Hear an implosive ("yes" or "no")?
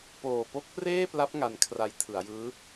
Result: no